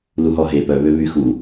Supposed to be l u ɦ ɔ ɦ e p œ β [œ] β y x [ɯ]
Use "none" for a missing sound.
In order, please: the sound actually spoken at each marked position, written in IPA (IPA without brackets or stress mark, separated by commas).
ø, u